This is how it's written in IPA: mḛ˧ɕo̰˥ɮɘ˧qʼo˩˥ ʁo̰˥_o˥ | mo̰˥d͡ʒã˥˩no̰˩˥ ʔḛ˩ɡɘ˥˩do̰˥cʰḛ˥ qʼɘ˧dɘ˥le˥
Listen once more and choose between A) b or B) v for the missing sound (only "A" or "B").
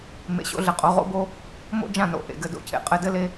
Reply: A